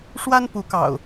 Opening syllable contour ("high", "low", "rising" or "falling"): high